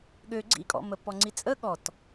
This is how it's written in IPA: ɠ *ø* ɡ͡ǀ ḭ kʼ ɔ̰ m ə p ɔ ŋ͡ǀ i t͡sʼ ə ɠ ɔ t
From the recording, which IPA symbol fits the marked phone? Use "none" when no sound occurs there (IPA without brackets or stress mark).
ø